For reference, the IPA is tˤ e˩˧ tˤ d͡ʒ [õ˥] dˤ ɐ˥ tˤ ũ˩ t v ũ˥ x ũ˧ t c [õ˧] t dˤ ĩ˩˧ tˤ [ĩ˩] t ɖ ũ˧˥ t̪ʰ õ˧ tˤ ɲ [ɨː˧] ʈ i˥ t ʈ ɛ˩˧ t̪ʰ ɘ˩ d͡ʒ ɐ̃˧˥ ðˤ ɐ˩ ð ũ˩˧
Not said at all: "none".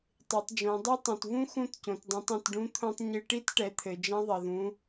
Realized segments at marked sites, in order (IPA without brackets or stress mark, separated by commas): õ˩˧, õ˩, ĩ˩, ɨ˧